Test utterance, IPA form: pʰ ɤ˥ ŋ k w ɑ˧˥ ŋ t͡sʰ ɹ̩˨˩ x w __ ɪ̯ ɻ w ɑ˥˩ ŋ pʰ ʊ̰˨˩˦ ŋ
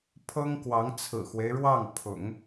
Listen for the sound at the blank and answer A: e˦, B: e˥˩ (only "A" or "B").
A